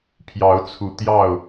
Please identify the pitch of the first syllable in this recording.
rising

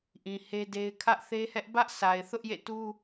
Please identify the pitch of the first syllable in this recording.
low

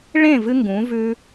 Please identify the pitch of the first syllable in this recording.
falling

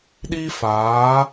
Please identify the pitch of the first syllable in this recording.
high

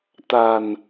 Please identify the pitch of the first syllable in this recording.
low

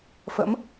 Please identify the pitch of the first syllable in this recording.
rising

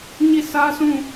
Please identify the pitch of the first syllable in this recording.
falling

